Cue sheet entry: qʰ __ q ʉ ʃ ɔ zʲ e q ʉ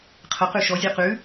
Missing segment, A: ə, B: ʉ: A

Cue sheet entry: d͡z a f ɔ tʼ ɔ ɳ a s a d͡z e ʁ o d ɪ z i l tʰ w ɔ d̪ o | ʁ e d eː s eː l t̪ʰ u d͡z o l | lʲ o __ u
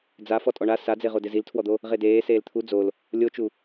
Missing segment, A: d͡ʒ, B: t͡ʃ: B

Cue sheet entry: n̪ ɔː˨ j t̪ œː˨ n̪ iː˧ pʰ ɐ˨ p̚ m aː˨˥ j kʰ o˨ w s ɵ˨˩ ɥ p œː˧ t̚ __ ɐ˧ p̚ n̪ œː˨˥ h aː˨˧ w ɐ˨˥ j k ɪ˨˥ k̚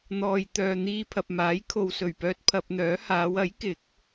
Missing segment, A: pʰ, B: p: A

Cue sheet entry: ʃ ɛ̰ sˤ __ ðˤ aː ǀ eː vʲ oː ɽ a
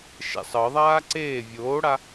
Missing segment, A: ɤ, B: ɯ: A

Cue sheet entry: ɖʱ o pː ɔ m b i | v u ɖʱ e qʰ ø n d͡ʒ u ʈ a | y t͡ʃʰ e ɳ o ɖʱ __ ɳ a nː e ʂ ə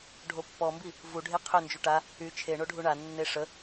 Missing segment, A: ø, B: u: B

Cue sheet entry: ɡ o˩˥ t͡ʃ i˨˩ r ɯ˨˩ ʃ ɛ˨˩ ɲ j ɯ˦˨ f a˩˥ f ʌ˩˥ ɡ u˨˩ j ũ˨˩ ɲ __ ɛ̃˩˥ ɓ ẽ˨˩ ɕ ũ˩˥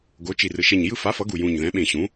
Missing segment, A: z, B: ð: B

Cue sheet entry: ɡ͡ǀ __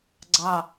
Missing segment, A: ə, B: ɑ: B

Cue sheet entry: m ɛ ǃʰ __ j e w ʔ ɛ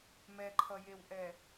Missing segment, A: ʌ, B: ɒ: A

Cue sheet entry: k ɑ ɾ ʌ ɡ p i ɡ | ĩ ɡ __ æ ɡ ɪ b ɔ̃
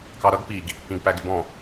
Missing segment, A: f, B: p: B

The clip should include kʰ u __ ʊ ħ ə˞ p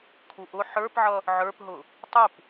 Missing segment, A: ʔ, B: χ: A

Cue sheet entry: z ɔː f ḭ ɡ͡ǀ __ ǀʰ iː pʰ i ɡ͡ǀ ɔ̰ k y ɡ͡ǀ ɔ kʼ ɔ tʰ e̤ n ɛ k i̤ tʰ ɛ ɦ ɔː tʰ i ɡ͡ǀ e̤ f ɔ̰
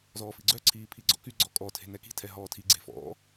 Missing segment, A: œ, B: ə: A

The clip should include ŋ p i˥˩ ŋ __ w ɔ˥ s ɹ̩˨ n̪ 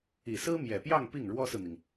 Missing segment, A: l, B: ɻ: B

